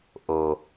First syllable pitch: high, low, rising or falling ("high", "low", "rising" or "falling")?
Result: low